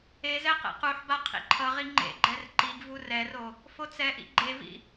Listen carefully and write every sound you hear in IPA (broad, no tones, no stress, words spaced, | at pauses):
ezɛ qḛquħba qʰḭǃʰʌʁi ŋ͡ǃḛɡ͡ǃɛr ǃiɡ vurɛro | fot͡sɛʔḭ ɡ͡ǃevḭ